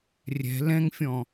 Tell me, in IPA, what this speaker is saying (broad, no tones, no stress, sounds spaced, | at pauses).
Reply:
rʲ ɛ̤ l ɛ̃ ŋ fʲ ɔ̃